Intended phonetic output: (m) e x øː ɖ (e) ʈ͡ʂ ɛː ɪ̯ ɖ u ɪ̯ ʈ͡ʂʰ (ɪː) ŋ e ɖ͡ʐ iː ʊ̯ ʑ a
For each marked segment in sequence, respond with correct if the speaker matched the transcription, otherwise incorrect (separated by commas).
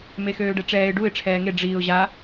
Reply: correct, incorrect, incorrect